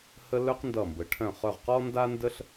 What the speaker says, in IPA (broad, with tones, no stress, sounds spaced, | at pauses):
h ə˥ l œ˥ q n d ʌ˧˩ m b ə˩˧ ʈʰ œ̃˧˩ χ œ˧˩ ʁ q ɔ˥ n d a˥ n d ə˥ ɬ